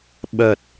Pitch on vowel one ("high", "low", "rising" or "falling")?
low